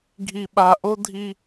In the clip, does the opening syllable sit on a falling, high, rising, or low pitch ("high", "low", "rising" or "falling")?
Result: low